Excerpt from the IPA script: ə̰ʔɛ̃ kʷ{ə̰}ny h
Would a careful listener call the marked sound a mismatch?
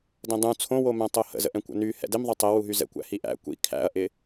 no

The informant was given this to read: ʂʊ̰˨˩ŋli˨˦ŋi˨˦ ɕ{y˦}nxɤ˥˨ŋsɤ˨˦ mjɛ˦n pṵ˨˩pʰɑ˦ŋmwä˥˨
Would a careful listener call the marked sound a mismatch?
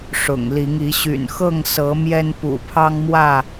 yes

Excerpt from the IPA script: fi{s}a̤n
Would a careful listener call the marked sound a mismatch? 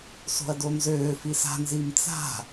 no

